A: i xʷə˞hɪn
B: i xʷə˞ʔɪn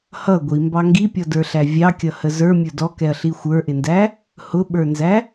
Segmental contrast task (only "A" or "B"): B